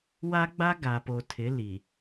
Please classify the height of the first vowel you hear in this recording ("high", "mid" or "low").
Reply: low